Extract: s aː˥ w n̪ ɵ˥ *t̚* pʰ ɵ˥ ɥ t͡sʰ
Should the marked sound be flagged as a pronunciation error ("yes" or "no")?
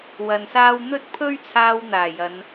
no